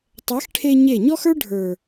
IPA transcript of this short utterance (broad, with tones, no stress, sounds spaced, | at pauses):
tˤ ɛ˨˦ x ʈʰ e˧ ɲ e˦˨ ɲ ɔ˦ x ə˞˦ ɖʱ ə˞˨